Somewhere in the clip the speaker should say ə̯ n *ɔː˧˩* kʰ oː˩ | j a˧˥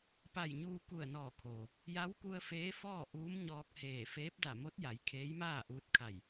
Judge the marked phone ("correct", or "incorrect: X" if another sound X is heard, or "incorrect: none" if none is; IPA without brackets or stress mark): correct